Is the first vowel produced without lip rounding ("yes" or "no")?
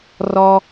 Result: no